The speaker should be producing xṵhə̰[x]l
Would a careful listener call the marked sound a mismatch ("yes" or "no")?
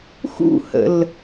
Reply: yes